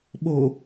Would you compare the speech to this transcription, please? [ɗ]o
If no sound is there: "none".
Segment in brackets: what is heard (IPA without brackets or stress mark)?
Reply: ɓ